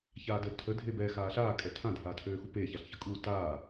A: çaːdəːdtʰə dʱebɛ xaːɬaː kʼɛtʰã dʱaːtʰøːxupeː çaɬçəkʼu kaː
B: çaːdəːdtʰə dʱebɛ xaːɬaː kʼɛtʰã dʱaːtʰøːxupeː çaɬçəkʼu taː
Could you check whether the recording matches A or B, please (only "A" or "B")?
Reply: B